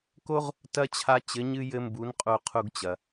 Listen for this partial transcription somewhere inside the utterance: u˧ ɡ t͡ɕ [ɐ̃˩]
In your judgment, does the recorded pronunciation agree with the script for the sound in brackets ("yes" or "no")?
no